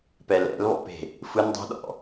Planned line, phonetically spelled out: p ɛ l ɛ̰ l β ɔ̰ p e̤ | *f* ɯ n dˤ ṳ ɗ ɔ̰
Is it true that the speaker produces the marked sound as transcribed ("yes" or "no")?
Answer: yes